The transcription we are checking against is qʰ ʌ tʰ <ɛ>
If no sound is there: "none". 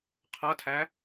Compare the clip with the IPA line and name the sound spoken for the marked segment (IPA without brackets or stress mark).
æ